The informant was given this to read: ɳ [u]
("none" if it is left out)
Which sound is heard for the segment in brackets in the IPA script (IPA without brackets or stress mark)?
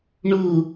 u